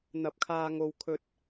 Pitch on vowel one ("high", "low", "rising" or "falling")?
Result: rising